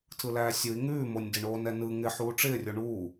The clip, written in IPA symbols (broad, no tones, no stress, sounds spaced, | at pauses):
tʰ ɯ l æː sʲ ɯ i̯ ŋ ʉː m o nʲ d ɪ ɳ oː n ɛ n ɯ ŋ ɪ ħ uː ʈ͡ʂ ɪː rʲ o ɳ uː